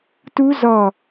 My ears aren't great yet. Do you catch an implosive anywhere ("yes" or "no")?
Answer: no